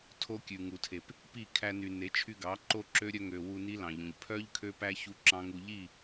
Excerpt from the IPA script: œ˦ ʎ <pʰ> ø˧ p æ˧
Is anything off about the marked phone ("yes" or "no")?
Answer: yes